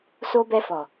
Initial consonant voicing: voiceless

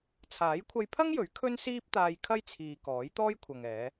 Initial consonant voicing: voiceless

